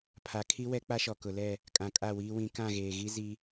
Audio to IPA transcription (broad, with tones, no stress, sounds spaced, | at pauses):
pʰ a˨ kʰ i˦ w ɛ˦ k͡p a˦ ʃ ɔ˨ k ʊ˨ l ɛ˦˨ | kʼ ã˨ kʼ a˦˨ w iː˦ w ĩ˦ k ã˦˨ ɣ eː˨ ɣ i˦ z i˦